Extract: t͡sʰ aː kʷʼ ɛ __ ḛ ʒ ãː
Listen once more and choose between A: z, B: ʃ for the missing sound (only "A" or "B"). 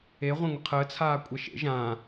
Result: B